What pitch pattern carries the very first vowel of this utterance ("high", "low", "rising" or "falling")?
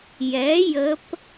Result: rising